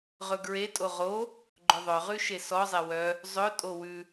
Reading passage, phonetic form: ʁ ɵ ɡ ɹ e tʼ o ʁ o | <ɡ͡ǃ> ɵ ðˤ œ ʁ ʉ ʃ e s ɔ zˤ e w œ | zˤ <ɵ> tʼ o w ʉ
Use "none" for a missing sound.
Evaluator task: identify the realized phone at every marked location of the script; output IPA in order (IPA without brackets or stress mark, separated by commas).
ɡ͡ǃ, ɵ